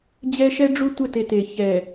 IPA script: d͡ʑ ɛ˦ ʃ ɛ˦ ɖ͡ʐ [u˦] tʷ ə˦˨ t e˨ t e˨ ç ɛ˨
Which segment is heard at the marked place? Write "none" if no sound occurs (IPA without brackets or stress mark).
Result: u˦